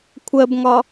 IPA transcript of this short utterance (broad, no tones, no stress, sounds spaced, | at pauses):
kʷʰ ɜ b ŋ ɒ